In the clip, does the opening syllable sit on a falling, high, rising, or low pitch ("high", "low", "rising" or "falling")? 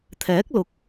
rising